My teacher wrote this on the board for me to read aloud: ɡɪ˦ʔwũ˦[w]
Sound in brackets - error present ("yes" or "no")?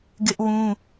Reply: yes